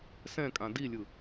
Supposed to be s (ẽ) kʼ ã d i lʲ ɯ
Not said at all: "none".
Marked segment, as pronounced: ɛ̃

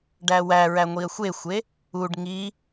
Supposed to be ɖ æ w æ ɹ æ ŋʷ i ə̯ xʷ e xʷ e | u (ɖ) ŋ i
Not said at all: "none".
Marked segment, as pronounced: ɖ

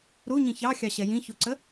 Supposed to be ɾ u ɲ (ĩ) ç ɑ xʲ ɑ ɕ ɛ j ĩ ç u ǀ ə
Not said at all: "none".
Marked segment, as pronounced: ĩ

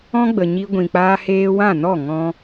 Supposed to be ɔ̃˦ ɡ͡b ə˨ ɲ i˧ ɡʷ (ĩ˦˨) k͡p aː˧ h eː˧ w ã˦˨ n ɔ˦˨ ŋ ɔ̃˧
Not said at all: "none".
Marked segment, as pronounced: ĩ˨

